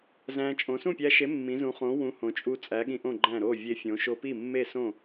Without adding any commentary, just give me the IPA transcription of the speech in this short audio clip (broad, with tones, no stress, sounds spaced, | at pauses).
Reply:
z æ̃˧ t͡ʃʼ õ˩˧ s ũ˥˩ pʲ æ˧ ʃ e˨˥ mː ĩ˩˧ z ũ˩˧ χ õ˨˥ w ũ˨˥ h õ˩˧ t͡ʃʼ u˧ t͡sʼ æ˨˥ ɠ ĩ˧ ʔ õ˥˩ ɡ͡ǃ æ̃˥˩ ɾ o˥˩ vʲ e˧ fʲ õ˩˧ ʃ o˧ p i˥˩ mː e˥˩ s õ˥˩